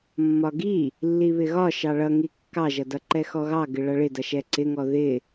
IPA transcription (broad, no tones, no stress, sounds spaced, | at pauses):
mː ɒ ɡ i | lː i β ɪ ɣ ɒ ʃ ɑ ɭ ʌ ŋ i kː ɑ ʒ ʌ d ʌ ǃ ɛ x ɔ ɣ ɑ ɡ ɪ ɭ ʌ ɭ ɪ d ʌ ʃ ɛ ǀ ɪ ŋ ɔ ð ɪ